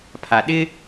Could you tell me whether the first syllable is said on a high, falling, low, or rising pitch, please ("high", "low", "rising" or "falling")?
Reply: low